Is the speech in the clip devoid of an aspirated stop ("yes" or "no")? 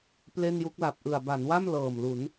yes